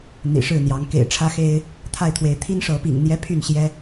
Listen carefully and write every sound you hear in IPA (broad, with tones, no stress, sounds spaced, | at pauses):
n̪ ḭ˨˩ ʂ ɻ̩˥˨ n̪ j ɑ˨˦ ŋ k ḛ˨˩ ɪ̯ ʈ͡ʂʰ ä˦ x e˦ ɪ̯ | t̪ʰ a˥˨ ɪ̯ t̪ʰ w e˨˦ ɪ̯ t̪ʰ i˦ n ʂ ɤ˨˦ p ḭ˨˩ ŋ n̪ j ɛ˦ pʰ y˥˨ n ɕ j ɛ˦